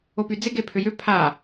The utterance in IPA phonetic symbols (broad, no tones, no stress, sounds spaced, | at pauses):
o p y d͡z ɪ ɡ e pʰ ʏ j ʏ pʰ a